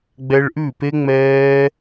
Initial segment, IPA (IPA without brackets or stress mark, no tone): ɡ͡b